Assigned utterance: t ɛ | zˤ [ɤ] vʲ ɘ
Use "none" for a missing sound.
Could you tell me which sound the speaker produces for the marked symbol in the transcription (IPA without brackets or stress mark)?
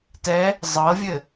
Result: ɤ